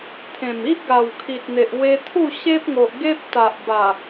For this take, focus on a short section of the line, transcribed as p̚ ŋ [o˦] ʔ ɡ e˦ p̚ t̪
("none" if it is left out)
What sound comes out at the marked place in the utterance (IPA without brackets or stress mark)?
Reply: o˨